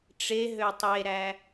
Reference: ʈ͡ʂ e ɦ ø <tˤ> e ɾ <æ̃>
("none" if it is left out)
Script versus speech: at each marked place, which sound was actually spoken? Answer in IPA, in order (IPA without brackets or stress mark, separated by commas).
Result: tˤ, æ